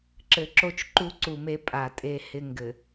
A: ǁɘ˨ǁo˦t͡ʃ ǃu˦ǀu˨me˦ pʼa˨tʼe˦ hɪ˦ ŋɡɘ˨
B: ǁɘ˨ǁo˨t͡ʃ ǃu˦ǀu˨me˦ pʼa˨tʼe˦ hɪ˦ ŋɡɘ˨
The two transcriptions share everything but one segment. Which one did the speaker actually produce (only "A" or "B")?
A